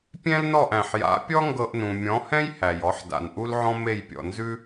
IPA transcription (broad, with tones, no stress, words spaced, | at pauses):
pʲɛ̃˥lnɔ˥˩ʔ æ̃˩ħja̰˩˥pʲɔ˥ ŋɡɤ˧ʔnũ˩ mʲɔ̃˩˥hɛ̃˥j hæ˩jɔ˩˥ħda̰˩n ʔu˥lʕɔ̃˥me˥˩j pʲɔ̰˩nzʉ˥